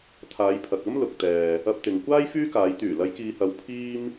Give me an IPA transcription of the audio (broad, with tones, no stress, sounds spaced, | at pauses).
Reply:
t̪ʰ aː˨˧ j pʰ ɐ˨ k̚ ɐ˥ m l ʊ˨ k̚ t̪ ɛː˨ | ɐ˧ p̚ t̪ ɪ˨ ŋ kʷ aː˥ j f yː˥ k aː˨˧ j t̪ yː˨˩ l ɐ˨˧ j k iː˨ h ɐ˨˧ w pʰ iː˥ m